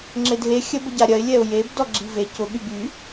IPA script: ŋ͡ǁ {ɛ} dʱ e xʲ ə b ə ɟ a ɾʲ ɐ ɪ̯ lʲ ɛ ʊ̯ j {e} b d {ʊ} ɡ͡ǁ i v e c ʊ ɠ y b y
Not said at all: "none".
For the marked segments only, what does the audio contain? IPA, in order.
ɪ, e, ɔ

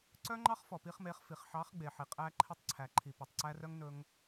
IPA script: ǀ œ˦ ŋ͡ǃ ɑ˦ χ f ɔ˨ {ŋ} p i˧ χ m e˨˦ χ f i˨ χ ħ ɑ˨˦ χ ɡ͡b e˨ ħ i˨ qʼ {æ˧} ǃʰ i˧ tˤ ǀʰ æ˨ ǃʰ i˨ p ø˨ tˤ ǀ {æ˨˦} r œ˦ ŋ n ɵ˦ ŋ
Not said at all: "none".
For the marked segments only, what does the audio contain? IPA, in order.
none, æ˧, æ˧

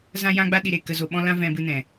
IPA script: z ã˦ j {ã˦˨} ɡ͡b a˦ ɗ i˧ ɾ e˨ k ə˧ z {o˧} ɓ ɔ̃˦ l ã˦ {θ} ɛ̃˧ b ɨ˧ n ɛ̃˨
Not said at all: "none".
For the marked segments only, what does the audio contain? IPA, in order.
ã˦, o˧, v

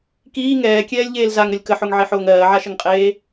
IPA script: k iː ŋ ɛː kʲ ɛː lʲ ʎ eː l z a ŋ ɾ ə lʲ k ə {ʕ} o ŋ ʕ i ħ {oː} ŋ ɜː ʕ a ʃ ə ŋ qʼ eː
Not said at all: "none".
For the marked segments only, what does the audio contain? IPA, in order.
ħ, oː

